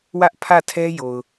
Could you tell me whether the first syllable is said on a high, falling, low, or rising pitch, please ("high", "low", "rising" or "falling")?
high